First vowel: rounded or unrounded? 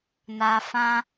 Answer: unrounded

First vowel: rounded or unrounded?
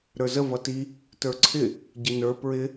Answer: unrounded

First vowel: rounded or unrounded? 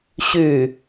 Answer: rounded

